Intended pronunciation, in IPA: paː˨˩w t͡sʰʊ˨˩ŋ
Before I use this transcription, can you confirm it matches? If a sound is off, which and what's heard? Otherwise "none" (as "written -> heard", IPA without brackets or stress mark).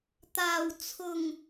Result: p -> t̪